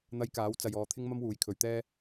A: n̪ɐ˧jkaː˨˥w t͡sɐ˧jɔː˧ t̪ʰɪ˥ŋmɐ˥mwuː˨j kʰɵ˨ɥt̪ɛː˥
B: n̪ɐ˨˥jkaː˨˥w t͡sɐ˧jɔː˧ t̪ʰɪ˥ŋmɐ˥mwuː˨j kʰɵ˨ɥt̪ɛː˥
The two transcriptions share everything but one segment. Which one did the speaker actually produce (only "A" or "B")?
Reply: A